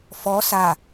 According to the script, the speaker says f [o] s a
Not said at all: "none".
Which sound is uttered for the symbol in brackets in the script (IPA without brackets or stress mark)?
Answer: ɔ